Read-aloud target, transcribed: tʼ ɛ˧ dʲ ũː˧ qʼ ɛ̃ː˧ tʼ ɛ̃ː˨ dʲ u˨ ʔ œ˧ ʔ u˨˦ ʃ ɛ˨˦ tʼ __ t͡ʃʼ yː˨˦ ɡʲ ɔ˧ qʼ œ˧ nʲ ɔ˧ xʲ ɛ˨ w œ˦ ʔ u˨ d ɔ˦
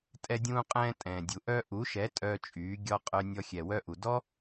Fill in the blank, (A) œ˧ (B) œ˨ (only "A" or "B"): A